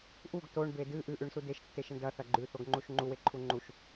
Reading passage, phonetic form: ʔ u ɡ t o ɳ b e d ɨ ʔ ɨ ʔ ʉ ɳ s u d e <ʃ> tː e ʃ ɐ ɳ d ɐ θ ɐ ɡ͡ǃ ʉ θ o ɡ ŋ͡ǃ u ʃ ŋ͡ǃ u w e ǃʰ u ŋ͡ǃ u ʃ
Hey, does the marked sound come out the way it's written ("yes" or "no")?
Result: yes